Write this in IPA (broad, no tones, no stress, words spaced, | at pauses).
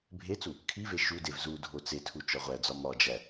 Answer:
bʱet͡su | kʰive ʃudev zudʱo t͡setʰu t͡ʃɒʁʷæd͡zɒ mɒd͡ʒæ